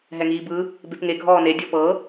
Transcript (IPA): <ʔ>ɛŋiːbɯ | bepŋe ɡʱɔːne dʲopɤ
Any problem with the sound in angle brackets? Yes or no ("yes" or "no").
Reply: yes